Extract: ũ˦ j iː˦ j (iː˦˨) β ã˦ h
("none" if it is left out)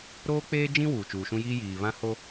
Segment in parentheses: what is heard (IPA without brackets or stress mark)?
iː˨